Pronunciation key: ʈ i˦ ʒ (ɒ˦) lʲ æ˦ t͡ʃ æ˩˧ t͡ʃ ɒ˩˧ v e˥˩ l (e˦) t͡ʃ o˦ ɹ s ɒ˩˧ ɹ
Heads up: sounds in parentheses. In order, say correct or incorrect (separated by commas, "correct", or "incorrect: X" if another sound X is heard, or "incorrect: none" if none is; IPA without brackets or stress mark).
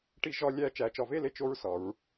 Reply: correct, incorrect: e˥˩